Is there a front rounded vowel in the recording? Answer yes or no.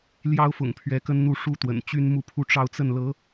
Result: yes